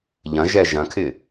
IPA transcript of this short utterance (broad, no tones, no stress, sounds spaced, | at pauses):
ʎ ɐ̃ ʒ ɛ ʒ ɐ̃ kʰ ɪ